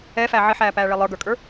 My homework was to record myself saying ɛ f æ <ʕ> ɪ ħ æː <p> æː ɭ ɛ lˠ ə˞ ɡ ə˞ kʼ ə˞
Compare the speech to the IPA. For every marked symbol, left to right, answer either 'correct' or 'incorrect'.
correct, correct

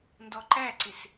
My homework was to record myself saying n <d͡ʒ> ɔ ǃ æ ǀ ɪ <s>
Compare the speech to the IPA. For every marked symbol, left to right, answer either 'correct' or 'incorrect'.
incorrect: d, correct

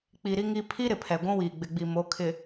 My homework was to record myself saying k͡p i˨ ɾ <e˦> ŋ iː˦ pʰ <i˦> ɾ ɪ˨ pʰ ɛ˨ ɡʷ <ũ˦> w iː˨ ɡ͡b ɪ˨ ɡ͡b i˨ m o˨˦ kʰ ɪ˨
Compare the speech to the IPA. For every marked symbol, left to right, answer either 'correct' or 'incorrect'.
incorrect: i˦, correct, correct

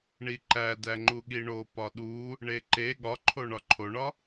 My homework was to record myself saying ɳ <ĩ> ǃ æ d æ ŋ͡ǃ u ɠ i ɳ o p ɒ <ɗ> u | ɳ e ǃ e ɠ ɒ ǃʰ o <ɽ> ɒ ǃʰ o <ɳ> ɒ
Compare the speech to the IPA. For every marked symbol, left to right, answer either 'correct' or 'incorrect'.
incorrect: i, correct, incorrect: ɳ, correct

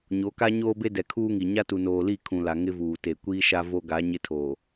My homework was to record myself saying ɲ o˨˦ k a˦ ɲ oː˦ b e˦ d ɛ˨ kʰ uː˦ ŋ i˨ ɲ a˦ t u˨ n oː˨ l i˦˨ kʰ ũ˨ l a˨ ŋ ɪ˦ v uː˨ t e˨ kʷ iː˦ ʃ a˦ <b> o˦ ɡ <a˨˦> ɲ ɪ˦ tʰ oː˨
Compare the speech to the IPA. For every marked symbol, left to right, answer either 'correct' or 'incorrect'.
incorrect: v, correct

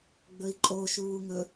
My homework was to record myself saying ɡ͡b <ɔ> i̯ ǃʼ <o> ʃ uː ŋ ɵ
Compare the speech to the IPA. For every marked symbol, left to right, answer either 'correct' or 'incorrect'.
incorrect: ɵ, correct

